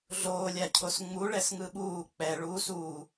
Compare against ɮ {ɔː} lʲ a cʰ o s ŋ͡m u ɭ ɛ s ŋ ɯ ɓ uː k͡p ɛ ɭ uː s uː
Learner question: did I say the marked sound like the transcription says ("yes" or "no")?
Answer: no